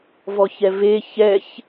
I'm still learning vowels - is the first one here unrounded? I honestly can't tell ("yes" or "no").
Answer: no